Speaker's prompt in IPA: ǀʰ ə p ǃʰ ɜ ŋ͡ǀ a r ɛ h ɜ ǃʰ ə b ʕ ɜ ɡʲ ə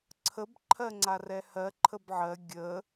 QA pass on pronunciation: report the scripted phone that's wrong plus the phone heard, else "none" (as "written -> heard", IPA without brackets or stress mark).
p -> b